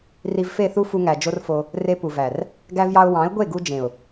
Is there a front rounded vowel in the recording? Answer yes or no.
no